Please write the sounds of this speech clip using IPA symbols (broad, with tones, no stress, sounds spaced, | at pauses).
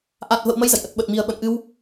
ʔ a˨˩ t̚ v ə̰˧˨ w m ə˧ j z ə̰˧˨ j ʔ ə˨˩ t̚ ɓ ə˨˩ t̚ m i˨˩ ə̯ ɓ ə̰˧˨ n ʔ ɨ˧ w